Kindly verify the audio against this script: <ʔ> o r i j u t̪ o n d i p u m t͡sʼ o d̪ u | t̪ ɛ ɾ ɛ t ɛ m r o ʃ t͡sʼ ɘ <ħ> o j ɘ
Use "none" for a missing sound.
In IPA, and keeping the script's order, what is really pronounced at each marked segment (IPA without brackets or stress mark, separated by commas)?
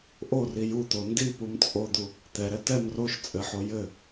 ʔ, ħ